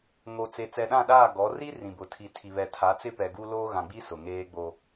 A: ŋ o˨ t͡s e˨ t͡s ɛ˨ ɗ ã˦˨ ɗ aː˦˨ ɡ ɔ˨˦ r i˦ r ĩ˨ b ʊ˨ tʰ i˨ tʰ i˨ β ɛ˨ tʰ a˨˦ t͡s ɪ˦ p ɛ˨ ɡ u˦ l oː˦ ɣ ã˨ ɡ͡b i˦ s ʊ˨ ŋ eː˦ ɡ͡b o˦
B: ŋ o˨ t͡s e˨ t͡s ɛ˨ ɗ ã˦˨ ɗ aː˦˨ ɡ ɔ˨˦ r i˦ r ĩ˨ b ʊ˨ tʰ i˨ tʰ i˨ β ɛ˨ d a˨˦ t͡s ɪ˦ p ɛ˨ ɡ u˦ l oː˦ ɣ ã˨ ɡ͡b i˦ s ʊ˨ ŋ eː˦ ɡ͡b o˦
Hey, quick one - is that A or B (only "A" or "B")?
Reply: A